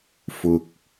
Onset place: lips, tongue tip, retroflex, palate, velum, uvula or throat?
lips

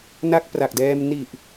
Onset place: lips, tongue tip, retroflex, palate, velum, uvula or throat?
tongue tip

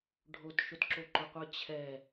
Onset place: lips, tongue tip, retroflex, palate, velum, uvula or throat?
retroflex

